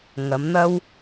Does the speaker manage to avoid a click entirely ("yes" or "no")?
yes